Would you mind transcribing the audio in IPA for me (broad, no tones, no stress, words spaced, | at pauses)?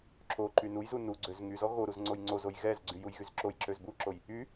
ǁo ǃynujzu nuɡ͡ǀøz ŋyzɔ ɣoɾuz ŋ͡ǀojŋ͡ǀozoj ɣɛzɡ͡ǀy jujɣyzǁojǁøz buǁoj | y